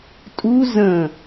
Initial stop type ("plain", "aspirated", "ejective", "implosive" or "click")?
ejective